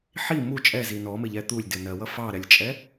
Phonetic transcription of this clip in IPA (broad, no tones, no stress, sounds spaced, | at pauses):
ħ i m u t͡ʃʼ ɛ z i n ɔ m ɪ ʎ ɛ t̪ u lʲ d ɪ n ɜ w ʌ f ɑ ɾ ɛ lʲ t͡ʃʼ ɛ